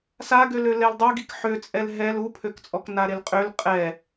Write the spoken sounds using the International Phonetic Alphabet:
s a ɡ ø l ø l ɛ l dˤ u ɡ i k ħ ø t͡sʼ ɛ l ɦ ɛ l u pʰ ø k t͡sʼ ɔ k n a ɾ e l qʼ ø l qʼ ɛ

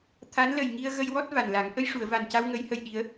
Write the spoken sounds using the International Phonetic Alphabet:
t̪ʰ a˧˥ n l ə˨˩ j ŋ i˧ ə̯ ɣ ə˧ j w ɔ˦˥ t̚ v a˨˩ n l a˨˩˦ ŋ ʔ ə˧ j ʂ u˨˩˨ ə̯ v a˨˩ n c a˧ w ŋ ə˧˥ j h ə˧ j ɗ i˧˥ ə̯

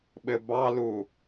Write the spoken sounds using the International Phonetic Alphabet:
ɓ ɘ b ɑ l u

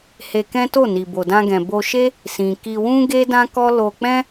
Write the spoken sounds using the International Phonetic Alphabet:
h e˧ k ɛ̃˦ t o˦˨ n i˨ b o˨ d ã˧ ɡ ɛ̃˨ b o˧ ʃ e˦ | s ĩ˨ k i˧ w ũ˦ ɡ e˦ d ã˦ k ɔ˦ l o˧ k͡p ɛ̃˦

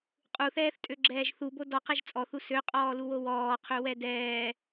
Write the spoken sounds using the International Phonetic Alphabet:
qʼ u θ ɛː θ tʼ ø ɡ͡ǁ ɛː ʒ θ u b o d ɔ q ɛ ʒ t͡sʼ ɔ θ u s ø qʼ ɔː l u w o w ɔː qʰ ø w ɛ d ɛː

